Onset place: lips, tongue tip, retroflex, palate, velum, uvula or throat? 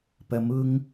lips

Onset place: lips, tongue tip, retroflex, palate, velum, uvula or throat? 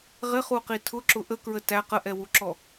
uvula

